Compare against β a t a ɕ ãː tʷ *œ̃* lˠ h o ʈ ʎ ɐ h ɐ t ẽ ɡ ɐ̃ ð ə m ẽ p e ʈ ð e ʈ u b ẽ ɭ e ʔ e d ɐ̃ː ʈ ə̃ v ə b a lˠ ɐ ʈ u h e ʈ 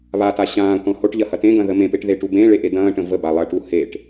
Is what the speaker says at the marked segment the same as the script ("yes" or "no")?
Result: no